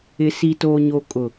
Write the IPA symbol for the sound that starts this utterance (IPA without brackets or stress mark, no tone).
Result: ɪ